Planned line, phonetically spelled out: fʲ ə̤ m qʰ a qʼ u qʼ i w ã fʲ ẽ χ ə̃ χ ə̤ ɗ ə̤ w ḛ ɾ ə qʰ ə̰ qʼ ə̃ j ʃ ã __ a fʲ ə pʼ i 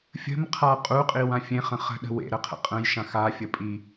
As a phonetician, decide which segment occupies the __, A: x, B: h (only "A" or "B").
A